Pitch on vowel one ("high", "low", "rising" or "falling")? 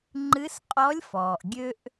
rising